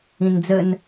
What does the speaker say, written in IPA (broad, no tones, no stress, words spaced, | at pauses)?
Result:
ĩnd͡zən